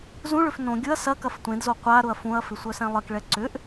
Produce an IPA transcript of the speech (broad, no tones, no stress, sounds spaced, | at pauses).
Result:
z ũ ɭ ʏ f n õ ɡʲ ʊ ɐ̯ s ɐ k ɐ f tʷ ẽ d z o qʷ a ɾ ʊ ɐ̯ f ũ ɐ̯ f ɪ sʷ œ s ɛ̃ lˠ ɪ k ɭ ɛ ǀ ʏ ʔ